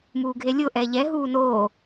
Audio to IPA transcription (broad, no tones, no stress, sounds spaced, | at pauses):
m uː ɡʱ e lʲ ʊ ʔ ɛ ʎ ɛ ɦ uː n oː